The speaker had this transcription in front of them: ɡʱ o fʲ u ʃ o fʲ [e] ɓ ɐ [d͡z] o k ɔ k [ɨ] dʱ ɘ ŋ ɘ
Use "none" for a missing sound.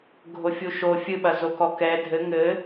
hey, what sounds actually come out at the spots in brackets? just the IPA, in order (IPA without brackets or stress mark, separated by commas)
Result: ɨ, z, ɛ